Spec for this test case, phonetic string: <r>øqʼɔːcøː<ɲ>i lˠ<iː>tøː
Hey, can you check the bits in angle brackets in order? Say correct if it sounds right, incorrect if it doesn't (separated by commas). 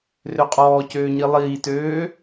correct, correct, correct